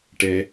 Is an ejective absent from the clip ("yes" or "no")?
yes